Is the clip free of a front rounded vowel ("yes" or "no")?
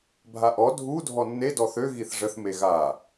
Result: no